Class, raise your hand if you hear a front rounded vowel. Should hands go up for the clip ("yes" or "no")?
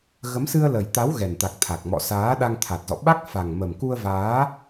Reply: no